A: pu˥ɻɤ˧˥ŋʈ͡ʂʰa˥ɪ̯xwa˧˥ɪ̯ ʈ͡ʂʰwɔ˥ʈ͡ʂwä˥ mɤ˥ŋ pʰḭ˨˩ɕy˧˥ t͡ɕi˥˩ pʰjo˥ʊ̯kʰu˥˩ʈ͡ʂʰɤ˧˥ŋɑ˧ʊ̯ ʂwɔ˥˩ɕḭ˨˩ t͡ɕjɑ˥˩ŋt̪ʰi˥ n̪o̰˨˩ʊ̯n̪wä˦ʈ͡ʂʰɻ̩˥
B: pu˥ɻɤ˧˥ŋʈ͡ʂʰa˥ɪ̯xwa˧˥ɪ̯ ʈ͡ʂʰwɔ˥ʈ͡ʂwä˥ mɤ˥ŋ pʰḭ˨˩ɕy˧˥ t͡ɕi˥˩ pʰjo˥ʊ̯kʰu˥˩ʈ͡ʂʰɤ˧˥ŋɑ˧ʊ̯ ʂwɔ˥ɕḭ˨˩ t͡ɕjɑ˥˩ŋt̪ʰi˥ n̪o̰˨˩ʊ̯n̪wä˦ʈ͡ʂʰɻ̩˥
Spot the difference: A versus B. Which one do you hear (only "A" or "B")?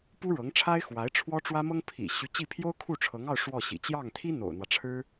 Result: A